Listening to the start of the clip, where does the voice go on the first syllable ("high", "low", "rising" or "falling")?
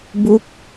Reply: falling